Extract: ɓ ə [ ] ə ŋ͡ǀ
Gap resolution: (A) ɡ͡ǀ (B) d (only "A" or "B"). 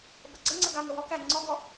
A